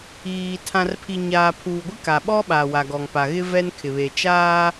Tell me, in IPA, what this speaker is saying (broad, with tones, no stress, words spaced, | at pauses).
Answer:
iː˨ tʰã˨rpʰi˨ɲaː˨ pʰuː˨ɡʷɪ˦ka˨ɓɔ˦ ɓa˨wa˨ɡɔ˨ŋ pa˨ɣɪ˦ vɛ˦nkʰɪ˨βe˨ t͡ʃaː˦